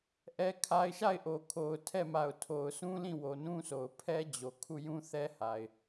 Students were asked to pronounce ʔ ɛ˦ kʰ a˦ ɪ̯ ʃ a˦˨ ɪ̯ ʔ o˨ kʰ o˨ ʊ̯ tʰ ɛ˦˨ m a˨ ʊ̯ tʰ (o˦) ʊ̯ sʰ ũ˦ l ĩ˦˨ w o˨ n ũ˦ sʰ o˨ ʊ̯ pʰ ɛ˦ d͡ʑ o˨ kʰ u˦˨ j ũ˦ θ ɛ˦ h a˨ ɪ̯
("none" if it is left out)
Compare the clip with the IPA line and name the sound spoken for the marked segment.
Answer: o˨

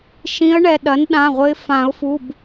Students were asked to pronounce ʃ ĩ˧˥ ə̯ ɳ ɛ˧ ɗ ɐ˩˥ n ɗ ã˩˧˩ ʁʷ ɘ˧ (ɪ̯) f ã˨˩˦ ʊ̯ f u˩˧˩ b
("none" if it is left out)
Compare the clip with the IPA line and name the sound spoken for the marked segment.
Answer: ɪ̯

